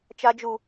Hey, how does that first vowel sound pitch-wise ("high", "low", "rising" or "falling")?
high